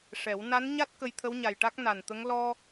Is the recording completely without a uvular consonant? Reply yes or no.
yes